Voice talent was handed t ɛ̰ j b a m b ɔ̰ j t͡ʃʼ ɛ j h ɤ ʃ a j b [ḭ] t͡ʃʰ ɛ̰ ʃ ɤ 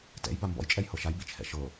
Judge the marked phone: correct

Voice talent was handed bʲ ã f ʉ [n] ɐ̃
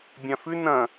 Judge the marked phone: correct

